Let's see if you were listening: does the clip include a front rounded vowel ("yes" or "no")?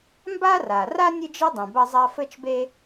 no